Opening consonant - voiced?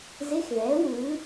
yes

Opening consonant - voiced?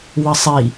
yes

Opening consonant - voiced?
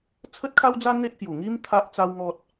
no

